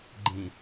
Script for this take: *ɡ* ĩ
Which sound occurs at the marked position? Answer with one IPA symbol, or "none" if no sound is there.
ɡ͡ǃ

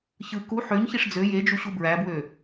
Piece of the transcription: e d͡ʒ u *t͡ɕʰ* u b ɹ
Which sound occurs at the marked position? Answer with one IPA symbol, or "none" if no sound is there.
ɕ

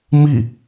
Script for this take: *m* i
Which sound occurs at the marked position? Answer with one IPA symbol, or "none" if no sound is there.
m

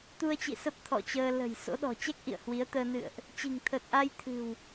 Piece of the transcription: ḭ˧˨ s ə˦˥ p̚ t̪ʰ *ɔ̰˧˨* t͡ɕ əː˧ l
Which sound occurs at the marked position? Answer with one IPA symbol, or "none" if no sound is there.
ɔ̰˧˨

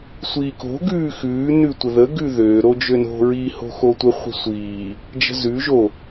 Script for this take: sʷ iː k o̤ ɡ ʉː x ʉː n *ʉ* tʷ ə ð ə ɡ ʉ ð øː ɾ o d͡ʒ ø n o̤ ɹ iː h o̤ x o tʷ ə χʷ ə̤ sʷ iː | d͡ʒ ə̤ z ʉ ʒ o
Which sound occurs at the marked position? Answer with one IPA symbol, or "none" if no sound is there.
ʉ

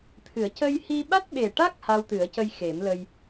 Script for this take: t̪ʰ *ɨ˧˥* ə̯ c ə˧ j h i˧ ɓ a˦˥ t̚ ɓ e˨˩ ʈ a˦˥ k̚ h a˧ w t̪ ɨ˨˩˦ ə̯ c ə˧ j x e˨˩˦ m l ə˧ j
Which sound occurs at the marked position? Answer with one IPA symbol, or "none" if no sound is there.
ɨ˨˩˦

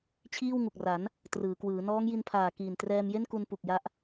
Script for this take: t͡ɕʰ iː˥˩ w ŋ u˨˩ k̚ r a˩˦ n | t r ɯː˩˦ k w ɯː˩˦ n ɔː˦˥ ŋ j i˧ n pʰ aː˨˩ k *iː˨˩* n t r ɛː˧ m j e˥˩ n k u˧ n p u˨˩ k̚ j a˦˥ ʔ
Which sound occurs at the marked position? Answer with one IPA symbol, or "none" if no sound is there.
iː˨˩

